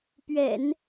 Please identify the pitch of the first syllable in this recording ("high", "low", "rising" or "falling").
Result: low